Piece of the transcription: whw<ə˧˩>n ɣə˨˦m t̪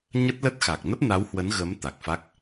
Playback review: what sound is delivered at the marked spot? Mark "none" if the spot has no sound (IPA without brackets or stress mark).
ə˨˦